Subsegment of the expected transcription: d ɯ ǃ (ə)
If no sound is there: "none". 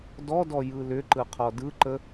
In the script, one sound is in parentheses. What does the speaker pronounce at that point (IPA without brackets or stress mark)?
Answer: ə